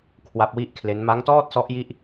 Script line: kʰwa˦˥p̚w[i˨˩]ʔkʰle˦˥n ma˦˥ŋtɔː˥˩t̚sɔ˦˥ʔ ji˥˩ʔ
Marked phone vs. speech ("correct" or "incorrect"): incorrect